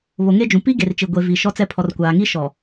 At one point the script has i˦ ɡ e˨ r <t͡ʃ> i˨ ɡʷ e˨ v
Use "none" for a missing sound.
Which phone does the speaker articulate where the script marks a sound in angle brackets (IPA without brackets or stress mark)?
t͡ʃ